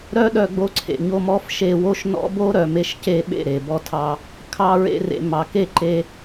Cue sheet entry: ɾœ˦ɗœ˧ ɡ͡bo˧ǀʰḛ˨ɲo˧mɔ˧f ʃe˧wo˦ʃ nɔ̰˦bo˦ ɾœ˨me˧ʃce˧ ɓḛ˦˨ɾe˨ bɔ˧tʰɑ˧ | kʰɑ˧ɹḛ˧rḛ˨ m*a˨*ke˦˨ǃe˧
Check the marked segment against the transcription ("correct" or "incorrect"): incorrect